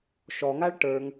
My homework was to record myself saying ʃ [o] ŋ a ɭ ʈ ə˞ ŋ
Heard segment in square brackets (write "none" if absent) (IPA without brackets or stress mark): ɔ